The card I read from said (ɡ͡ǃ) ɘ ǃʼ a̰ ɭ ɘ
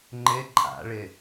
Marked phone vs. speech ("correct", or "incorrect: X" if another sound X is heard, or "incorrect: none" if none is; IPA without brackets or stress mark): incorrect: ŋ͡ǃ